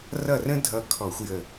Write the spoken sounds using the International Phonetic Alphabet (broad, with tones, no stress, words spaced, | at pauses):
rʌ˥˩rə̃˥dʱʌ˧˩ kʰɔ˧˩˧xʷjə˧˩